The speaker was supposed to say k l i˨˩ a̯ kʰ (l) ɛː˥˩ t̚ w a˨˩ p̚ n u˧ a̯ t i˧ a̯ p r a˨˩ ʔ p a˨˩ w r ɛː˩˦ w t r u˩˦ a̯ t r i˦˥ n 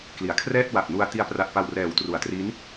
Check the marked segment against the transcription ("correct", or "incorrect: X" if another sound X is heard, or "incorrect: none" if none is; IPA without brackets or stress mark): incorrect: r